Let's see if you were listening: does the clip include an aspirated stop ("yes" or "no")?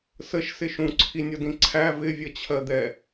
yes